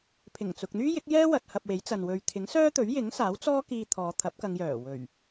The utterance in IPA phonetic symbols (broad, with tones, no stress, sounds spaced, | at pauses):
pʰ ɪ˨˩ ŋ t͡s ʊ˨ k̚ n̪ yː˥ j ɪ˨˥ k̚ j ɛː˥ w ɐ˧ t̚ h ɐ˧ p̚ w e˨˥ j t͡s ɐ˨ n w ɵ˨ ɥ t̪ʰ ɪ˨˥ ŋ s œː˥ t̪ ɵ˨˥ ɥ j ɪ˨˥ ŋ s aː˨˥ w t͡s ɔː˥ k iː˧ t̪ʰ ɔː˨˧ t̪ʰ ɐ˨˥ p̚ k ɐ˨˧ ŋ j œː˨˩ w ɵ˨˩ ɥ